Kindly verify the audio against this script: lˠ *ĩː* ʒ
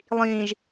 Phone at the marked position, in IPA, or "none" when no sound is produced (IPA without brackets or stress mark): ĩː